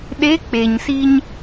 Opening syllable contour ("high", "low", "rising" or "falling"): rising